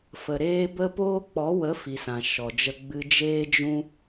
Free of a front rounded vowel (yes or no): yes